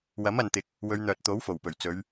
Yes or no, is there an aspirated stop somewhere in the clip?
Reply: no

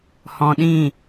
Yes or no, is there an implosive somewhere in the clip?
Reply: yes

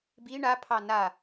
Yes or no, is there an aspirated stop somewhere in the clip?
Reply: yes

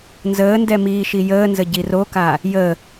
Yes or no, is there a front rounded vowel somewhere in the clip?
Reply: no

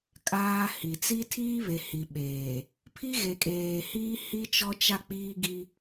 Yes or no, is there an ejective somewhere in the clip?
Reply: yes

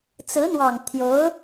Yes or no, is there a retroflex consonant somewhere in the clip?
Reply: no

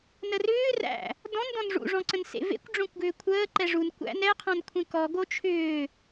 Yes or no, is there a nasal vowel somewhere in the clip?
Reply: yes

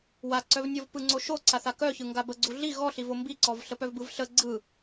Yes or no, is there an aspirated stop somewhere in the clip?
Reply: no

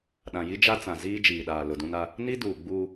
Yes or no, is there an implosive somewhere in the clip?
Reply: yes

